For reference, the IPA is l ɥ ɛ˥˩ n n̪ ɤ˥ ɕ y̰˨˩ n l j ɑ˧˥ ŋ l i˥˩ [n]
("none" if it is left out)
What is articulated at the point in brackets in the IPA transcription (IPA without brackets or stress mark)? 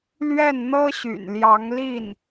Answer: n